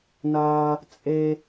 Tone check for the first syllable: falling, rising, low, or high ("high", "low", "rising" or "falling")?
high